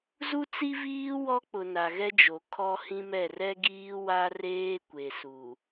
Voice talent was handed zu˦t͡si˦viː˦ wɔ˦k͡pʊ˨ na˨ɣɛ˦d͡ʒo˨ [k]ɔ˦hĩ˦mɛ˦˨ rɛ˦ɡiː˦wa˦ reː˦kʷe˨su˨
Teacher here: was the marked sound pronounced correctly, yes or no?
no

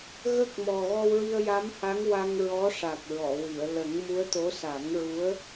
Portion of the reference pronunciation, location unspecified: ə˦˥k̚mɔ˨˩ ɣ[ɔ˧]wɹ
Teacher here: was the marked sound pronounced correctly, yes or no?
yes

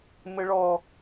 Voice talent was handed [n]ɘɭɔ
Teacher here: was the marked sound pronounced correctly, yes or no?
no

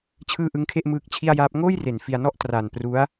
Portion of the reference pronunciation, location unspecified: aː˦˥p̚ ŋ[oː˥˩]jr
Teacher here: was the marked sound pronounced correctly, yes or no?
yes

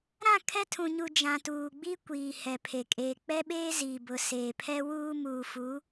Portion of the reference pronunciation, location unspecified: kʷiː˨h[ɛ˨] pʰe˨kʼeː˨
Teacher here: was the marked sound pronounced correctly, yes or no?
yes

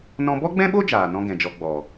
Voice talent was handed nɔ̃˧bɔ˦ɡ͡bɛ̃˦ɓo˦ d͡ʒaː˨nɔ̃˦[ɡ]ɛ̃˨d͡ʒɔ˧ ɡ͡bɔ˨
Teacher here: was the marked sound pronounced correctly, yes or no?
yes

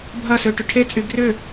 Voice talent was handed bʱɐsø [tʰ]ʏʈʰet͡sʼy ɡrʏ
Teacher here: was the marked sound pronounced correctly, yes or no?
no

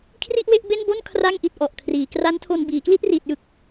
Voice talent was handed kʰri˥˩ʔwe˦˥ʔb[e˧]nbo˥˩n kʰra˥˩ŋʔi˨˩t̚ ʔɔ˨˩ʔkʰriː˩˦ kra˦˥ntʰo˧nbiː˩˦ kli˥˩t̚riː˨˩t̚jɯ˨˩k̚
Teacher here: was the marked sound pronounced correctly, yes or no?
no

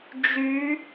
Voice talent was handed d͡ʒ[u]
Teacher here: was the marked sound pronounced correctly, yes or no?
no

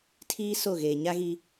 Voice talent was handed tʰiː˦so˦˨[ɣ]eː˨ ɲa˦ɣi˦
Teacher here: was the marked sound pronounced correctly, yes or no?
yes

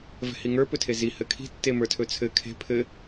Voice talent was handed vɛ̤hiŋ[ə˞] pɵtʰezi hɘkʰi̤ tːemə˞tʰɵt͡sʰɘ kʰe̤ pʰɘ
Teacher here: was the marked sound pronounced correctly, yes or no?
yes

